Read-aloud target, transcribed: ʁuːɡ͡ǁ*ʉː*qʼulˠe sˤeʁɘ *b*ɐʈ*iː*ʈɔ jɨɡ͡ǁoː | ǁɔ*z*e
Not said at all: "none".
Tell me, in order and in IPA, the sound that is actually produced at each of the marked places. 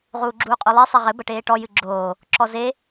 uː, b, eː, z

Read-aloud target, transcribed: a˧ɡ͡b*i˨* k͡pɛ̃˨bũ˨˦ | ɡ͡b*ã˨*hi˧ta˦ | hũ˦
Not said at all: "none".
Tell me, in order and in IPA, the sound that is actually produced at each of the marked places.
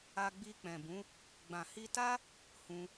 i˧, ã˨

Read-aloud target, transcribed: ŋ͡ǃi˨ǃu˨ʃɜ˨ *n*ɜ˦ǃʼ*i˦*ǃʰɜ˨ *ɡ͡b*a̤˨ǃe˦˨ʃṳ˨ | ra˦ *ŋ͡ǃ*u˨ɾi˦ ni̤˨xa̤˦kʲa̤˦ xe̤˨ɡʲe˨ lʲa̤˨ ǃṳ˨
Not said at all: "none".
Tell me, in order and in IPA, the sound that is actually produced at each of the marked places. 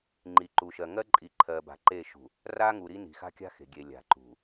ŋ, i˨, b, ŋ

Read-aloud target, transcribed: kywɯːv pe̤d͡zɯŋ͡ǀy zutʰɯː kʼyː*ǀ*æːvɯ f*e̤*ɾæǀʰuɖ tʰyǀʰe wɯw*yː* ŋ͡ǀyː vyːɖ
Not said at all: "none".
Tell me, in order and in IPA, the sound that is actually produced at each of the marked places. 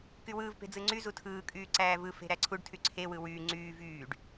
ǀ, e̤, yː

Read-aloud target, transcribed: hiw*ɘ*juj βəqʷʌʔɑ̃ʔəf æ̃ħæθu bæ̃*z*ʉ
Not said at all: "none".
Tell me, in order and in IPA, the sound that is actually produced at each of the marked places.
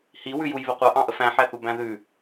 ʉ, ð

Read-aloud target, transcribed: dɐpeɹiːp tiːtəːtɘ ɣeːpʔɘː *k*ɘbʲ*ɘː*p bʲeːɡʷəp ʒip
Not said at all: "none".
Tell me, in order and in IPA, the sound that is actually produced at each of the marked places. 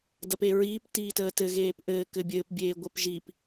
k, ɘː

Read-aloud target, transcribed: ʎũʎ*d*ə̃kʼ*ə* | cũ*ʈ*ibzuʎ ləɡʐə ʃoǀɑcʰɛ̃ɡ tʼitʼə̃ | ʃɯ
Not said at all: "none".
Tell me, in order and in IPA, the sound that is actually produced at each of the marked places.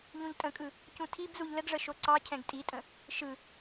tʼ, ɯ, tʰ

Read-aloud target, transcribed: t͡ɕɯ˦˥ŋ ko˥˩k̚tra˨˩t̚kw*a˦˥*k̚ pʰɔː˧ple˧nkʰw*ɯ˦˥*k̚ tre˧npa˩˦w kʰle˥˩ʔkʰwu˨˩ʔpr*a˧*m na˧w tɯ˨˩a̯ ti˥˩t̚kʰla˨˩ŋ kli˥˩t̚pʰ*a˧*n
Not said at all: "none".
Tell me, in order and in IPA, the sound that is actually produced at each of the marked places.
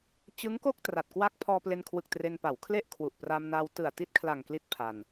a˦˥, ɯ˨˩, a˧, a˧

